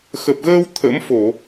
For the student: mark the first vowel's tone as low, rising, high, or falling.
low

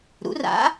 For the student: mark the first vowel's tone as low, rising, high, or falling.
rising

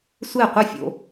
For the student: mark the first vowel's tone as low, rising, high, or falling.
falling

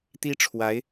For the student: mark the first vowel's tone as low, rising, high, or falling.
high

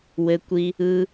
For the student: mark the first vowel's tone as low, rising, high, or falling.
low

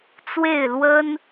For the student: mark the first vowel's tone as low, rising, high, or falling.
falling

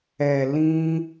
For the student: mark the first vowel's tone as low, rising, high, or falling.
low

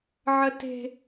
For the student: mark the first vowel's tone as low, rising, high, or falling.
high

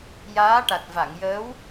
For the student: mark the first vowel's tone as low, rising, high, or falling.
rising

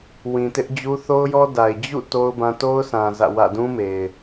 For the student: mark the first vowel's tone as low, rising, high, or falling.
low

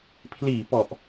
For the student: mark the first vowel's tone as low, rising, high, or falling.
low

